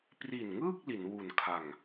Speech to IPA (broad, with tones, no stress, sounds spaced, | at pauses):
p r i˨˩ n ŋ ɯː˥˩ k̚ l i˩˦ n w u˨˩ n kʰ a˨˩ ŋ